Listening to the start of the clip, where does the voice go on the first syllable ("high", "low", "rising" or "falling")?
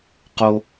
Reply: high